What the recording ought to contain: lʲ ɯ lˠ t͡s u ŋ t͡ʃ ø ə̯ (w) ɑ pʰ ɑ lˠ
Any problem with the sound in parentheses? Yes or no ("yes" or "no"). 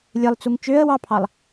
no